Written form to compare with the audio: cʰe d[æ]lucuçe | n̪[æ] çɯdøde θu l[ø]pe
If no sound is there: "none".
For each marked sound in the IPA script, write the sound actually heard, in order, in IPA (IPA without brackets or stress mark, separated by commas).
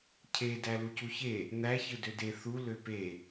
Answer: æ, æ, ø